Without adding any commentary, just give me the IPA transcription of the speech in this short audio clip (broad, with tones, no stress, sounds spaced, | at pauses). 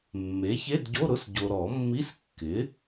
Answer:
mː e˩˥ ç e˧˥˧ d ɟ o˧˥˧ ɾ ʊ˧˥˧ s ɟ o˨ ɾ ɔ˨˩˦ mː i˧˥˧ s kː ɪ˩˥